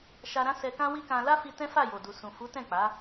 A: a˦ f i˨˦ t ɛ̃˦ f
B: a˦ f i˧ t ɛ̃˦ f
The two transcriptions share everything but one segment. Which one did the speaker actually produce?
B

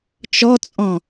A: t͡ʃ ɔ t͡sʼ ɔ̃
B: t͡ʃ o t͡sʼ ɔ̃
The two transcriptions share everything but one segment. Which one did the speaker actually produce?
A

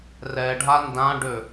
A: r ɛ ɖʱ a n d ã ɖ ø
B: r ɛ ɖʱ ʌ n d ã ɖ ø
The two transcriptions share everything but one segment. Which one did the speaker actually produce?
A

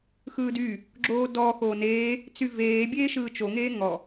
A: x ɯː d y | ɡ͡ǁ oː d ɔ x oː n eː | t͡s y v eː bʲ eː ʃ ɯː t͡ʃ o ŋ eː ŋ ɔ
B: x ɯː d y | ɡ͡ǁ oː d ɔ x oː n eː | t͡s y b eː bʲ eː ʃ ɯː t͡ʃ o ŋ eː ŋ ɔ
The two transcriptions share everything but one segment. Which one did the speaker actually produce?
A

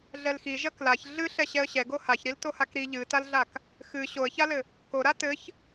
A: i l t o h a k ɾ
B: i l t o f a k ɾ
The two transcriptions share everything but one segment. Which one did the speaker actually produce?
A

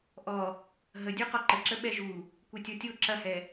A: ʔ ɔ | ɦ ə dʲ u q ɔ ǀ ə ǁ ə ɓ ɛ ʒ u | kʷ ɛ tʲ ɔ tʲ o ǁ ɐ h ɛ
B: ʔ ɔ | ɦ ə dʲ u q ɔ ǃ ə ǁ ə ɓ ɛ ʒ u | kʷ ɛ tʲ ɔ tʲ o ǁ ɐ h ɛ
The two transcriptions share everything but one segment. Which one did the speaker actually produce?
B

